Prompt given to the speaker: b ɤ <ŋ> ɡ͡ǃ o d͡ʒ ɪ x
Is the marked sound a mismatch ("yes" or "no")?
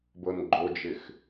yes